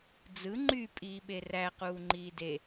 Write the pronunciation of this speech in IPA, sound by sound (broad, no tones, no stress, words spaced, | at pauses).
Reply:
d͡zɯ ŋ͡ǃy pʼiːɓeræ quːŋ͡ǃiːde